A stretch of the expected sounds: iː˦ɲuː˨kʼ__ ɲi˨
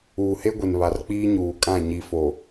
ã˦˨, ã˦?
ã˦˨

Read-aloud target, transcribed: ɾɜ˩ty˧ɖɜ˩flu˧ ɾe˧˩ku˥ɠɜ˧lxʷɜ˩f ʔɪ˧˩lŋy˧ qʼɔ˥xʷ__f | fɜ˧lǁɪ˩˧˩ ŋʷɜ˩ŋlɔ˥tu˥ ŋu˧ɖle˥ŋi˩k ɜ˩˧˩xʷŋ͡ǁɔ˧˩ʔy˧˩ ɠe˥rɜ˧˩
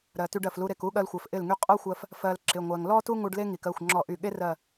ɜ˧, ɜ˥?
ɜ˧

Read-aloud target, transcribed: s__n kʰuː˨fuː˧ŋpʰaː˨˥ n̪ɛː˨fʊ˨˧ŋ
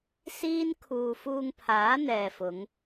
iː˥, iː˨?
iː˥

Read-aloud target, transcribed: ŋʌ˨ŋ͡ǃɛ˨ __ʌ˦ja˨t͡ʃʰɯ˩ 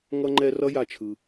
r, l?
r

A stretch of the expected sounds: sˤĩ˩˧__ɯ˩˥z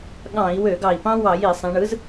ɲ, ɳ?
ɳ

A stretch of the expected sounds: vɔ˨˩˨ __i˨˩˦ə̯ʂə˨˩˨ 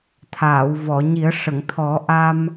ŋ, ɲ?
ɲ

